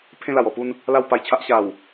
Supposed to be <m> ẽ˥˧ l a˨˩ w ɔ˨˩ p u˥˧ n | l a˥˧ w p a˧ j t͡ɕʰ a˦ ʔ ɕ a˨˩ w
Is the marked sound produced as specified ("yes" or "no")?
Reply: no